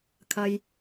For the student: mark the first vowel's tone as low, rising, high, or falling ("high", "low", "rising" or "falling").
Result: low